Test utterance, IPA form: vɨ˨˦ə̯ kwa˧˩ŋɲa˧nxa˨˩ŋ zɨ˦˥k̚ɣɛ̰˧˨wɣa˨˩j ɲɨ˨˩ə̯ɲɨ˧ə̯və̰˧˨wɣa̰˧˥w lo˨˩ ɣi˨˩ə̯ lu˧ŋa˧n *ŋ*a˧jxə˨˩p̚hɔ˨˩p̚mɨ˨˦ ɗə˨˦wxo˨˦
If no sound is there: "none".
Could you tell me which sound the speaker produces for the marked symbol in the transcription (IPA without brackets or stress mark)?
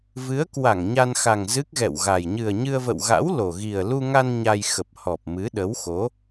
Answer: ɲ